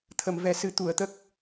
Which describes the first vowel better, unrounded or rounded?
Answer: unrounded